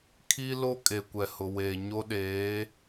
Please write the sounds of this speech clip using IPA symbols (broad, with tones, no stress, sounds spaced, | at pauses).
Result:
kʰ i˦ l o˦ kʼ e˨ kʷ ɛ˨ h ʊ˨ w eː˨ ɲ o˦ ɗ eː˨˦